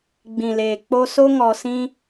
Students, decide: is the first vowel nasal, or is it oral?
nasal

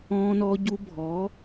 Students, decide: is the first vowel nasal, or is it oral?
nasal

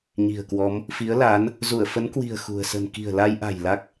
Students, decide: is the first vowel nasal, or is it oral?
oral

